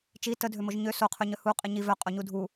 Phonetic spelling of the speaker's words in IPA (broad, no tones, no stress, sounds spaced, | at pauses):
t͡ʃ i t ə dʱ ø m o ʒ ɲ ø s o qʰ ø ɲ œ h u qʼ i ɲ i v œ qʼ o ɲ u dʱ u